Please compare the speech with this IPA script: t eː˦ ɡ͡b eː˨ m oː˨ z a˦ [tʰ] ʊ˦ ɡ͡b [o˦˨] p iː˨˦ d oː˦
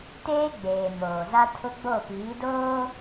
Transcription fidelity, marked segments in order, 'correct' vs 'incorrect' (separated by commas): correct, correct